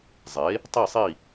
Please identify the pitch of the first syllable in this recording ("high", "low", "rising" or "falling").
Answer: rising